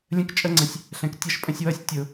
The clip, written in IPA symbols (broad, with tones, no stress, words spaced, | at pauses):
lʲə̃˧kt͡ʃʼə˧ŋ͡ǀə̃˨sʲ | ɬɛ̃˨ktʲʌ˦˨ʃ pʼə̃˧sʲwʌ˦˨sʲ tʲʊː˨